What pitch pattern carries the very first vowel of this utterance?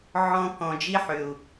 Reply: high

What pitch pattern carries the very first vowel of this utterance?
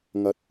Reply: low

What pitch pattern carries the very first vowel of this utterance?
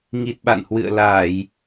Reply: low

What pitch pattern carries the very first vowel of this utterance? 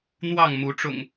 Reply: falling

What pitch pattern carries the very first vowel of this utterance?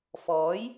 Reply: rising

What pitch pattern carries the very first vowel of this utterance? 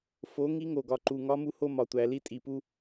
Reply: rising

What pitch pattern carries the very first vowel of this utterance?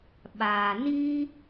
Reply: low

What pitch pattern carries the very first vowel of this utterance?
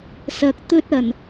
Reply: rising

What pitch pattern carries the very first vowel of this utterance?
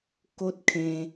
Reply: high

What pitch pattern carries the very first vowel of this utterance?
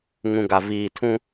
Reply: low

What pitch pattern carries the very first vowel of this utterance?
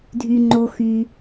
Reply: low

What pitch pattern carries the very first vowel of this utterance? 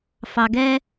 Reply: low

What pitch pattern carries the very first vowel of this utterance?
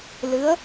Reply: rising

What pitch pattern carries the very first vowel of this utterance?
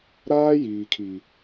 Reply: high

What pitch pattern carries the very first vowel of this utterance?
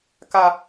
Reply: low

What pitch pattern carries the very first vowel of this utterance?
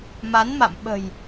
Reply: rising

